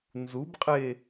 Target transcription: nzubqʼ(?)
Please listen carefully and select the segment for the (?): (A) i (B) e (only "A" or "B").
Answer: B